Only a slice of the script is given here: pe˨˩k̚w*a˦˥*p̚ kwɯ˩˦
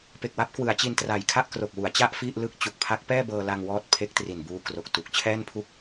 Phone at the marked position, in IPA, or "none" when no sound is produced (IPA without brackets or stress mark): a˦˥